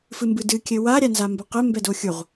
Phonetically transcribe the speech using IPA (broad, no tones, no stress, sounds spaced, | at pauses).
f ɨ m b ɨ d ɨ kʲ ɘ w a ɾʲ a n z a m b ɐ q ɘ m b ɛ d o xʲ u ʁ